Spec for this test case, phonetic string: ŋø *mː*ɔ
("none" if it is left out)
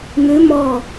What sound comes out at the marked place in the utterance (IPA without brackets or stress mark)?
m